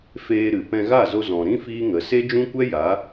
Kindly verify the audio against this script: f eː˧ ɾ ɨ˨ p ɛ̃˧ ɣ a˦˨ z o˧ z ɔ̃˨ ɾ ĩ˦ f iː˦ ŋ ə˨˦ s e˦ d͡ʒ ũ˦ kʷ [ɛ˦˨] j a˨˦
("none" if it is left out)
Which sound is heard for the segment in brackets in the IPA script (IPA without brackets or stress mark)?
ɛ˦